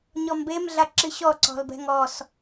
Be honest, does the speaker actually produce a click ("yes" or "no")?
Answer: yes